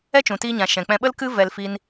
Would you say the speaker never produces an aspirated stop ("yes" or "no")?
yes